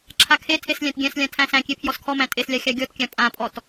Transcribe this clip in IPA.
ǁʰakʰetʰes lʲæ̃tɡʲæ̃slʲã tʰæ̃sæ̃kʲe pʰjɔskʰɔmæ̃ tʼeslʲa xʲaɡʲɔtkʲã pʼãpʼɔt

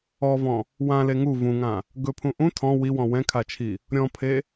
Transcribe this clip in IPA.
ɔvɔ̃ | wãle ŋu vũŋã | ɡɵpʰũ ʔũ tʰɔ̃ wiwɔ̃ wɛ̃kʰat͡ʃʰi | ɾʲɔ̃pʰe

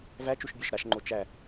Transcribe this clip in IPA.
væt͡ʃuʃbʲæʃ ɾaʃŋ͡ǃo t͡ʃæ

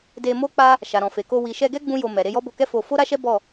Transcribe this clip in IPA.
de˧mo˦k͡pa˦ | ʃa˨ɾɔ̃˨fe˨ko˧ wi˨ʃɛ˧ɡɛ˦ ɡ͡bũ˦jo˧ mɛ˨ ɾe˧jɔ˦bo˧kɛ˦ fo˧ fo˦ɾa˦ʃɛ˦ bɔ˦˨

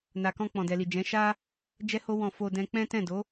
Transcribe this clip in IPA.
na˨ kɔ̃˧k͡pɔ̃˨dɛ˨li˨ d͡ʒɛ̃˨˦ʃa˦ | d͡ʒɛ˦ho˦ wɔ̃˦˨ fo˧ dɛ̃˦ k͡pɛ̃˦tɛ̃˦˨ do˨˦

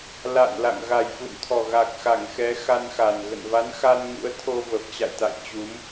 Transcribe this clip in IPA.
la̰˧˨nla̰˧˨ŋ ɣa˨˩jfṵ˧˨nt̪ʰɔ˨˩ ɣa˨˩k̚ xa˧˩ŋxɛ˨˦ xa˧nxa˨˩n ɣə̰˧˨nva˨˦nxa˧n ŋṵ˧˥ə̯t̪ʰo˧ və˨˩p̚t͡ɕa̰˧˨jt̪a̰˧˨j t͡ɕu˨˦m

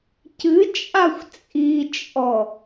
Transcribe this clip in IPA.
cɨt͡ʃʼaxʷ t͡sʼit͡ʃʼɔ

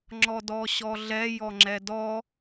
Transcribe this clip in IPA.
ŋ͡ǁɔdɔɕɔɮɛ jɔŋ͡ǁɛdɔ

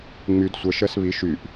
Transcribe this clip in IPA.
ŋ͡myd sʷɜʃɜs βi ʃyʔ

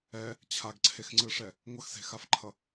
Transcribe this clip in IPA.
ɛ | t͡ɕʰaɡǀʰexŋ͡ǀɯʂɛ | ŋʷʌxse̤xafǃʰʌ

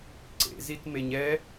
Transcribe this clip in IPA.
ǀḛzitmeɲ ɛ

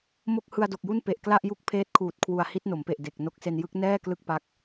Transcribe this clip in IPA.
mo˥˩k̚ hɯ˧a̯do˨˩k̚ju˥˩n pe˨˩ʔkla˥˩ʔju˥˩k̚ pʰeː˦˥t̚kʰuː˨˩t̚kʰwu˨˩a̯ hi˦˥t̚no˩˦mpe˨˩ʔ de˨˩k̚ no˦˥k̚se˧n jɯ˦˥k̚ nɛː˥˩ klɯ˥˩k̚pa˦˥k̚

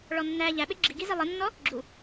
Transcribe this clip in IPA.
ɭɔnːæ ʎæɓe ɡ͡ǁiɡizi lˠənːɔ | ɡ͡ǁu

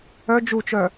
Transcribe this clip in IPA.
œ d͡ʒut͡ʃœ

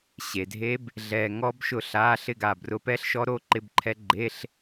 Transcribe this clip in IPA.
ɕe˨dʱe˦˥b | ɮɛ˨ŋɔ˦˥b ʃʊ˥˨ɬa˧˥˧ ɬɪ˥˨ ɡa˥˨brʊ˦˥ pɛ˦˥ɬ ʃɔ˦˥ɾo˦˥ǃɪ˧˥˧bǃʰɛ˦˥ ɡ͡ǃe˧˥˧ɬ

